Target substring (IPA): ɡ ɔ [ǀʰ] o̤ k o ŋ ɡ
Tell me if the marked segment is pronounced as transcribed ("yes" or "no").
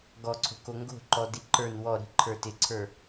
yes